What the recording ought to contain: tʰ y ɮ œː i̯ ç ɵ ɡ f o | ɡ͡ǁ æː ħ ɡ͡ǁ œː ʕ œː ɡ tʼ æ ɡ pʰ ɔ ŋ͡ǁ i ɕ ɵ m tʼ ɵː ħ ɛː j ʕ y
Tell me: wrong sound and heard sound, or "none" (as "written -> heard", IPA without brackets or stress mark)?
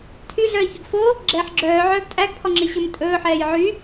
æː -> ɛː